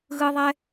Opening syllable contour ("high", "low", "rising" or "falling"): high